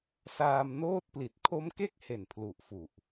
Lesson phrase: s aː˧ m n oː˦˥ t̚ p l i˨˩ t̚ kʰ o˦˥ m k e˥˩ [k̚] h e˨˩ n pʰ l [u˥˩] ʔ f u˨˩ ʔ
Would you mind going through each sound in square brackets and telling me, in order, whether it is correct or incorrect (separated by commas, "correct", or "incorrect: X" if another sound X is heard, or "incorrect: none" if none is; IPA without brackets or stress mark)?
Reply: correct, incorrect: u˨˩